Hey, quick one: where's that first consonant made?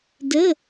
tongue tip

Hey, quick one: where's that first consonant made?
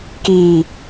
velum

